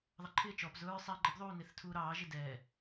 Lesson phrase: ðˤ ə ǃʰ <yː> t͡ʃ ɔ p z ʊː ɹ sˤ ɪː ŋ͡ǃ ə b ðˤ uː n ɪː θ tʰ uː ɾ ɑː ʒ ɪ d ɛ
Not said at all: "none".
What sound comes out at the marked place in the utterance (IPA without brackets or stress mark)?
ɪː